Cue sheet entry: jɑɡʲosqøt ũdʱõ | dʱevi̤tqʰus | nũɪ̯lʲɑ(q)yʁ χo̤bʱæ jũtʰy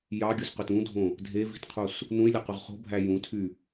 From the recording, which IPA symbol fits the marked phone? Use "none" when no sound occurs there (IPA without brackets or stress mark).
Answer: q